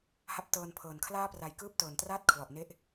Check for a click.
absent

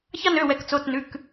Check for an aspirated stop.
absent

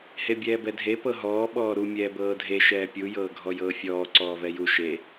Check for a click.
present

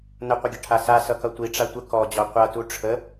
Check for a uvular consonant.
present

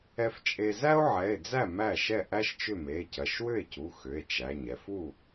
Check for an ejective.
present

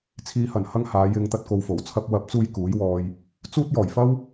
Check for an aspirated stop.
present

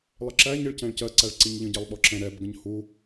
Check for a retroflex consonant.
present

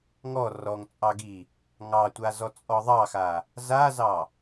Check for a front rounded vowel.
absent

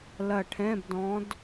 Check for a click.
absent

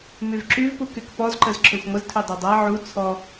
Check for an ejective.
absent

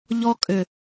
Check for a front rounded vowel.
present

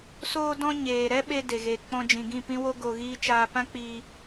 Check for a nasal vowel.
present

